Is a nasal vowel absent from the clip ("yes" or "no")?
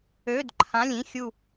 no